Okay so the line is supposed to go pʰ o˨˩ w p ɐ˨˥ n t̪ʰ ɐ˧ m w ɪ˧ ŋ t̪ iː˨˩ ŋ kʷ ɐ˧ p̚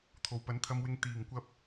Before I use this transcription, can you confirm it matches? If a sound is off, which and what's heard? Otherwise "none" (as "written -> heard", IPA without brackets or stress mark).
pʰ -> t̪ʰ